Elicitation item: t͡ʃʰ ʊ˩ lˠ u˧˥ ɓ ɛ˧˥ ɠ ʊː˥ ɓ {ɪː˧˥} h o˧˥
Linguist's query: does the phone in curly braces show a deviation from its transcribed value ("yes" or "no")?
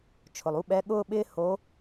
yes